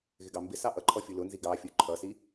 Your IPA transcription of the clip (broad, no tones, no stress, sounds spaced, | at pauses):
ɣ ɪ ɡ ɑ m b ɪ s ɑ ʔ ʌ ǃʰ ɔ fʲ u l ʊ n z i ɡ ɑ fʲ u ǃʰ ʌ s i